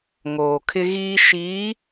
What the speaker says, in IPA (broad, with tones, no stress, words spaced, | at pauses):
ŋoː˨kʰɪ˦ɣiː˦ ʃiː˨˦